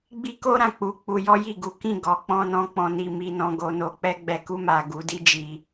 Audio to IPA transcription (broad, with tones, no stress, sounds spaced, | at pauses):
ɡ͡b i˦ k o˦ ɾ ã˦˨ k͡p u˧ k͡p u˧ j ɔ˦ j i˦˨ ɡ u˨˦ k ĩ˦˨ ɡ ɔ˨˦ k͡p ɔ̃˦ n ɔ̃˦ k͡p ɔ̃˧ n i˧ m i˧ n ɔ̃˧ ɡ o˧ n o˧ k͡p ɛ˦ ɡ͡b ɛ˧ k u˧ m a˨ ɡ u˨˦ d i˦ d͡ʒ i˧